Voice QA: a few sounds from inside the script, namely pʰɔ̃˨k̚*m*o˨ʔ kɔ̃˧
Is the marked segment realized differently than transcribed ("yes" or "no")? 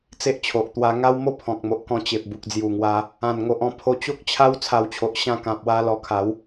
no